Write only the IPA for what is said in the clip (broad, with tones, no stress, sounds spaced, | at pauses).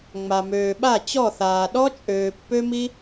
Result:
ŋ͡m a˨ m øː˨ ɓ a˦˨ t͡ɕ ɔ˦˨ θ aː˨ ɗ ɔ˦ t͡ʃʼ øː˨ pː ø˦ m i˦